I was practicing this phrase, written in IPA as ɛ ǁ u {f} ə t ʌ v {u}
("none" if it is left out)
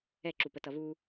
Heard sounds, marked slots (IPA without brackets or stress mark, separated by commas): p, u